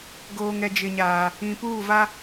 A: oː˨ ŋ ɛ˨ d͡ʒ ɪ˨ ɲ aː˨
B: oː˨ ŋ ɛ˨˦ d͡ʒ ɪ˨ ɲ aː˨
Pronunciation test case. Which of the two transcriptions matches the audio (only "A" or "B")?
A